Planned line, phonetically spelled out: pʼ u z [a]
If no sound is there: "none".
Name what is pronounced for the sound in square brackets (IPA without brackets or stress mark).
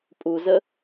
ə